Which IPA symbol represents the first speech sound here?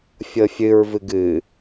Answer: fʲ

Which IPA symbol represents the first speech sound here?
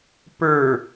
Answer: p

